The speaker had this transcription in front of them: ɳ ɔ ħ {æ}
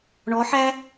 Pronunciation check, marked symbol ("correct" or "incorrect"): correct